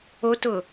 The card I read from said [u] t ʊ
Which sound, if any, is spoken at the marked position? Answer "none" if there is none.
o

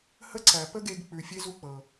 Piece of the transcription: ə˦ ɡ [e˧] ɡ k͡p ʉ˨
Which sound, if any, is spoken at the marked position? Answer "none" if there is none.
e˧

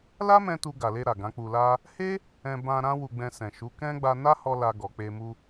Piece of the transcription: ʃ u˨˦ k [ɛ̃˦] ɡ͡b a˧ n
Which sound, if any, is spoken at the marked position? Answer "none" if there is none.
ɛ̃˦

